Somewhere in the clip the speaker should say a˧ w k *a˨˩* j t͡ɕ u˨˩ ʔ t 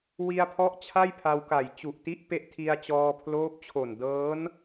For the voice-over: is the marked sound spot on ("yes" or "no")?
yes